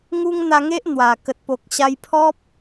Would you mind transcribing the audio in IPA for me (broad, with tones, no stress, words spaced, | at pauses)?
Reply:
ŋu˦ŋ n̪a˧ŋe˦ʔ n̪wa˨˩ kə˨t̚po˨k̚ ɕa˧jpʰɔ˦p̚